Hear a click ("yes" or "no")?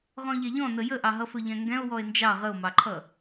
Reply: yes